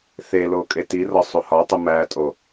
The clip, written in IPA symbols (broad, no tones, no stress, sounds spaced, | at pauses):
θ e l o kʼ e t i r ɒ sˤ u h ɒ tˤ u m æ tʼ o